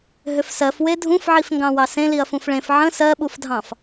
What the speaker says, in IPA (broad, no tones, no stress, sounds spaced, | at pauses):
ɦ ʏ f s ɜ f w e dʱ ũ f ʕ i f ŋ ɡ ɑ̃ w ɑ s ẽ l i ɐ̯ f ũ f ɭ ẽ f ʕ ə̃ s ɜ ɓ u f dʱ ɑ̃ f